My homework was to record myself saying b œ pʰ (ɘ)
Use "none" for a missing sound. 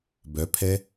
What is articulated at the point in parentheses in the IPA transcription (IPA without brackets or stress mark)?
ɛ